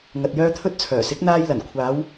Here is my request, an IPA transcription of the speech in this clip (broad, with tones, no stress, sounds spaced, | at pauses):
ŋ ɐ˨ t̚ j œː˥ t̪ʰ ɵ˥ t̚ t͡sʰ œː˨˩ s ɪ˨˥ k̚ n̪ aː˧ j l ɐ˨˩ n kʷʰ aː˨˧ w